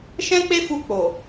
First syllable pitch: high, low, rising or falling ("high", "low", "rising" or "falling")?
high